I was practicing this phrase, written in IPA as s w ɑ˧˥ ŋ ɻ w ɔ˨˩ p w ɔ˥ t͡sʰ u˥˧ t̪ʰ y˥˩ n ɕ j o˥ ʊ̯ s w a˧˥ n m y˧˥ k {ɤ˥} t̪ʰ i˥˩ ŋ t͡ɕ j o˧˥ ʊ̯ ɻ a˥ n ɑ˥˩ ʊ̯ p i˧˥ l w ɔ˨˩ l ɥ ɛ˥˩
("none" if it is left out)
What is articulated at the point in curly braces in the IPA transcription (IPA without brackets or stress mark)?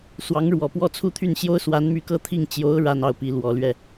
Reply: ɤ˥˧